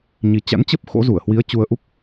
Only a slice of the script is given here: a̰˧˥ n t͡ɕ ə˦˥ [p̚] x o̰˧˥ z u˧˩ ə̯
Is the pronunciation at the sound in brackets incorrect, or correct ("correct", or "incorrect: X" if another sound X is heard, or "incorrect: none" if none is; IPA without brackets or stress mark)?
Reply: correct